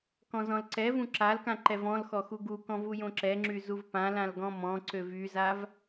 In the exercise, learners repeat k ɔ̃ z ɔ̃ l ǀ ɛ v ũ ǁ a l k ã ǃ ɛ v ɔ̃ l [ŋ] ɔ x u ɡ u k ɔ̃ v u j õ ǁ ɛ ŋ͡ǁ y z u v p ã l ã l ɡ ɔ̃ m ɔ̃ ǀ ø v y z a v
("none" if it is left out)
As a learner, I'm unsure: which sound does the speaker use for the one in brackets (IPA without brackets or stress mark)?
x